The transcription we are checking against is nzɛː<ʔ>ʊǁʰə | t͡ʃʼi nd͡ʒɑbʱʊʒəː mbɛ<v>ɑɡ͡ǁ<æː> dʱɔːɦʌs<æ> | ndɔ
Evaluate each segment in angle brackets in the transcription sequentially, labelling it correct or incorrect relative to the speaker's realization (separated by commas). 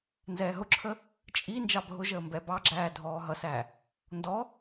incorrect, incorrect, correct, correct